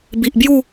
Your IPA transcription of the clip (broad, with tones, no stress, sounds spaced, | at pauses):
b i˨ ʔ b j u˥˧